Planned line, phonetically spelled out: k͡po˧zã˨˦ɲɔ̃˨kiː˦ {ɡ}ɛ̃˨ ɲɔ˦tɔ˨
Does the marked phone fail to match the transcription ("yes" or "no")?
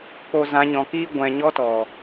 yes